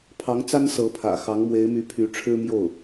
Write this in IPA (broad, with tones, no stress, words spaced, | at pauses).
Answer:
pʰɑ˧˥ŋt͡sa˥n sɤ˧˥pʰä̰˨˩ xɑ˧˥ŋmwe˧˥ɪ̯my˧˥ pʰy˧˥ʈ͡ʂʰɻ̩˥mjo˥˩ʊ̯